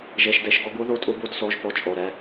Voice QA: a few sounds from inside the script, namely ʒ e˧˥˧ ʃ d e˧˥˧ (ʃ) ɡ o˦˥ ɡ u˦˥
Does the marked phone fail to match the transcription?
no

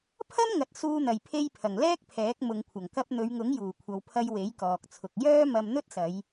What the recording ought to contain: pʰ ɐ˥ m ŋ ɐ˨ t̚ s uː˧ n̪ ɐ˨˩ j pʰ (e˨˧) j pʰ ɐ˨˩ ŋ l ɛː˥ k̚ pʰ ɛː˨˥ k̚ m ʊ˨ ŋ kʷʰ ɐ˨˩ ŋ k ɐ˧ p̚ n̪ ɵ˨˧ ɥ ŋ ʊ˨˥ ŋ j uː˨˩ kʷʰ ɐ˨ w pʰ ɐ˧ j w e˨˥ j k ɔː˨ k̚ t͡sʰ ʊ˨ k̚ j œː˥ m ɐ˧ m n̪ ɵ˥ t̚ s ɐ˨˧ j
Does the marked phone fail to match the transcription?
yes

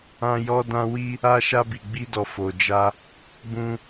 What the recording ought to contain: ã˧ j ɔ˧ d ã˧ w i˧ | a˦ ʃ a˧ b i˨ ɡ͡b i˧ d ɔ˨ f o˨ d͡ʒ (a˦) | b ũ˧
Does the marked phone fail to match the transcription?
yes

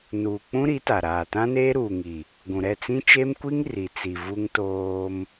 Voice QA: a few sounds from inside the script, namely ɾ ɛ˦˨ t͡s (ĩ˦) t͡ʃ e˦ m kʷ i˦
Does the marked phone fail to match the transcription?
no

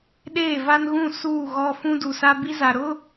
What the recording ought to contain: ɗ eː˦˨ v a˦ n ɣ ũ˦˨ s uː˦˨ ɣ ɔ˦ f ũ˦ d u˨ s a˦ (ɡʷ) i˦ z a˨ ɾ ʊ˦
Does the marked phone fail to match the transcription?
yes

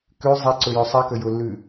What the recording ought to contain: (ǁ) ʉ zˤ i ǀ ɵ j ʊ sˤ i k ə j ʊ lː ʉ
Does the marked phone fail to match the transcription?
yes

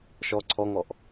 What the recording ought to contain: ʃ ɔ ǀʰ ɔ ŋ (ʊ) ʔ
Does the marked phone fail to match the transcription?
yes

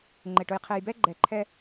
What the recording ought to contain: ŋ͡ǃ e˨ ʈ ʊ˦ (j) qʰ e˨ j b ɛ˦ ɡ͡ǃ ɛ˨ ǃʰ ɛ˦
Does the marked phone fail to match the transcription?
no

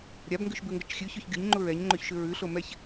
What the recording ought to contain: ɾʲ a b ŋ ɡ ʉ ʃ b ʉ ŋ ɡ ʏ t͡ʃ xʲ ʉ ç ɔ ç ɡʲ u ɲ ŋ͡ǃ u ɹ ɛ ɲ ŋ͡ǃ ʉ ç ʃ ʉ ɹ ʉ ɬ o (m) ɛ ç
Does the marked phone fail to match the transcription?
no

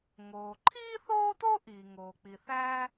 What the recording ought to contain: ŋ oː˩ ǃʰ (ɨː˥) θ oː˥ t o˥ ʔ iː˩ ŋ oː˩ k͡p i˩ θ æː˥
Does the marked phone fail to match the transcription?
yes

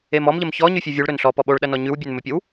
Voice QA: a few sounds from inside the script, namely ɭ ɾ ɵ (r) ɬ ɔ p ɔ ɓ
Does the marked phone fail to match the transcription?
yes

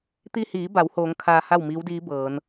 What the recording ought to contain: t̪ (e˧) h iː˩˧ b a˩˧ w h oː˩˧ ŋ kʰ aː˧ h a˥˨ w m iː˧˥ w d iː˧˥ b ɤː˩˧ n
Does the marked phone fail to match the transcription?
yes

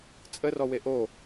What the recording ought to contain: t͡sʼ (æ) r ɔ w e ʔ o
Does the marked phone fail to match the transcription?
yes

